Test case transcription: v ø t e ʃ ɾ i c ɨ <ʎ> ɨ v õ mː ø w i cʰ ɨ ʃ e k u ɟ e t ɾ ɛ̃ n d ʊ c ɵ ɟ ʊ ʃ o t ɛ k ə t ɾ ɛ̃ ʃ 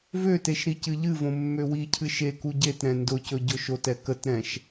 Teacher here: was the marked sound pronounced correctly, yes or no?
yes